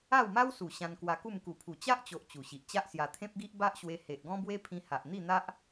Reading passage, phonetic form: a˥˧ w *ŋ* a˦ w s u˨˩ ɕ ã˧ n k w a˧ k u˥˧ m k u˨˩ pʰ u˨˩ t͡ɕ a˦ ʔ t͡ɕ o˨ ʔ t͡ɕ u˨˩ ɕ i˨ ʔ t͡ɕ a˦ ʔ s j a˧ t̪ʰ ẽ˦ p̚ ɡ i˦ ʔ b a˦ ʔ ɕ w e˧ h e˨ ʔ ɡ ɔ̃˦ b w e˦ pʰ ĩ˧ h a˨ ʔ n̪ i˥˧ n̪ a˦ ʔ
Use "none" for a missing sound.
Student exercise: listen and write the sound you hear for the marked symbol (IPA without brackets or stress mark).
m